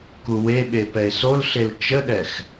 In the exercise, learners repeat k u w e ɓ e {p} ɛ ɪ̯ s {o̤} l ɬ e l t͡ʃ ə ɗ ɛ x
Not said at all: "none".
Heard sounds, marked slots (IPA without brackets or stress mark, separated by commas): p, o